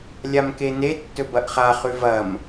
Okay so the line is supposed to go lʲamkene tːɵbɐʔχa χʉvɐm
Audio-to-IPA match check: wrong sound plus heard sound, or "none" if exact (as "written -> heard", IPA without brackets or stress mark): none